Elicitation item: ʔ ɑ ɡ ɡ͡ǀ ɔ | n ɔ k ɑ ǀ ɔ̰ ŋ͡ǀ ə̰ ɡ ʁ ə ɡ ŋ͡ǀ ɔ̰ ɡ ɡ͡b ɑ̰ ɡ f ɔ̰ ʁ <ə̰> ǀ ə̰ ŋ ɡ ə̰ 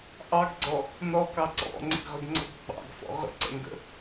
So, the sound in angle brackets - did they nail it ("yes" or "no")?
yes